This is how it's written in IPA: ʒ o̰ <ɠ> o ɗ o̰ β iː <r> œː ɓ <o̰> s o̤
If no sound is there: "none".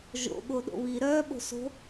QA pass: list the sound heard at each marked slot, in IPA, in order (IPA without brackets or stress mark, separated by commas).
ɠ, ɾ, o̤